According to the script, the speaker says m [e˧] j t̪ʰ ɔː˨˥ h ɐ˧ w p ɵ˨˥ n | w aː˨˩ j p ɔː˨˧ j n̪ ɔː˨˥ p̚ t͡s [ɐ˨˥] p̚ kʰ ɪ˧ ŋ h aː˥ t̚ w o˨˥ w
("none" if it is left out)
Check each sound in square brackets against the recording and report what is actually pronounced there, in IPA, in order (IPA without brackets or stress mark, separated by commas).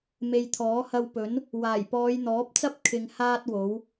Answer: e˨, ɐ˥